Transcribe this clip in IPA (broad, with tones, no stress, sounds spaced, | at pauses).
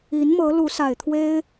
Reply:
i˧˥ n m ɤ˧˥ l u˧˥ s a˨˩ ɪ̯ t̪ʰ w e˥ ɪ̯